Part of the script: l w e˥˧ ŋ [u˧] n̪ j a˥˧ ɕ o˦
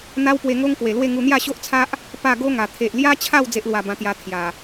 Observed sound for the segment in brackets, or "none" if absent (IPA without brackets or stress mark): u˧